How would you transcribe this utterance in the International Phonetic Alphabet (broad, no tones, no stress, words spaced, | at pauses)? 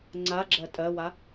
ŋ͡ǀaɡ͡ǁɜ tʼɜwa